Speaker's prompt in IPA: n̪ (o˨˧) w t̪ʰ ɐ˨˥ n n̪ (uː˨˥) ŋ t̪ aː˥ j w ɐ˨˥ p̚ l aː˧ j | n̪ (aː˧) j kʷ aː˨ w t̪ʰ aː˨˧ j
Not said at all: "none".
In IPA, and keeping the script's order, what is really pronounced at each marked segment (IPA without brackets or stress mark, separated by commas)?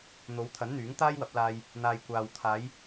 o˨˧, yː˨˥, aː˨